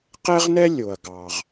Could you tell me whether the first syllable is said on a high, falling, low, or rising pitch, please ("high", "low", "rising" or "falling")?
high